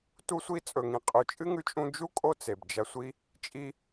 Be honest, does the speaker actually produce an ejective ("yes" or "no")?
yes